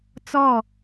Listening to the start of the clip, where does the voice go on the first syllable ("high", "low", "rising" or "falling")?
falling